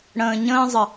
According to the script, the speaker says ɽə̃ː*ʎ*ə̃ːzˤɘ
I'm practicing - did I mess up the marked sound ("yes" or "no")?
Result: yes